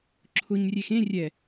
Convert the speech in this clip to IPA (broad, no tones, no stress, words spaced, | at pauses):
ǁʰʊɲrʲex ẽ rʲɛ